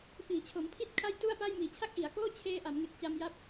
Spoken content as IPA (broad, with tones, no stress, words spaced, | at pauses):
fiː˨˩t͡ɕʰo˩˦mpʰi˥˩t̚kʰa˥˩j tu˥˩a̯pa˥˩j miː˨˩t͡ɕʰa˥˩k̚ʔi˩˦a̯koː˥˩ t͡ɕʰeː˧ ʔa˩˦mŋe˨˩k̚t͡ɕa˧mja˦˥p̚